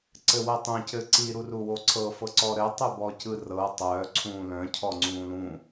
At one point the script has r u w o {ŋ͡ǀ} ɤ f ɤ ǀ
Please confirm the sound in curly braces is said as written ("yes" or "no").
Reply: no